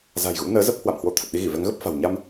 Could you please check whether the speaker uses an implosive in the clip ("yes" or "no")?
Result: yes